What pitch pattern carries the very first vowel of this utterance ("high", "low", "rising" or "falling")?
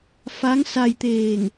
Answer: rising